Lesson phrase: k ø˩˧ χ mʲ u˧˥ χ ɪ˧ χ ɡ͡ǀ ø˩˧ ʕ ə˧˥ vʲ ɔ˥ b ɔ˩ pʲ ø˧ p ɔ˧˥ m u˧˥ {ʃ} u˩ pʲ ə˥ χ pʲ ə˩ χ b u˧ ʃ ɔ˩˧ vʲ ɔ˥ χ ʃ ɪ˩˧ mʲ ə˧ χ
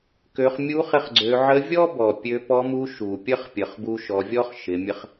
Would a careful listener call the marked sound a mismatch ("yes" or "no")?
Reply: no